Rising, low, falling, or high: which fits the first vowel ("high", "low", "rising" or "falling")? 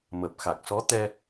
low